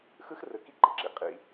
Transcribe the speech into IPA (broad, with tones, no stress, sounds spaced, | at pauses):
x ɯ˦ x r ɯ˨ k i˦ ǃ i˨ ǁ ḭ˨ qʼ ḭ˦